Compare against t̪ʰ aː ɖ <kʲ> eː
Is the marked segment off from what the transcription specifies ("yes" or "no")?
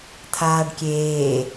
no